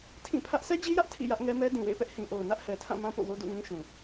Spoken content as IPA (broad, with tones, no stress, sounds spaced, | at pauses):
tʰ ĩ˦˨ pʰ ä˦ ʔ s ɛ˦ d͡ʑ i˦ j ä˦ ʔ tʰ ḭ˦˨ j ä˦ ʔ ŋ ɛ˦ m ɛ˦ d ĩ˨ w ḛ˦˨ ɪ̯ p ɛ˦ ʔ h ĩ˨ ʔ o˨ ʊ̯ n ä˦ ʔ h ɛ˨ tʰ ã˦˨ m ã˦ p o̰˦˨ w o˦ d ṵ˦˨ ŋ ĩ˦ ʃ ũ˨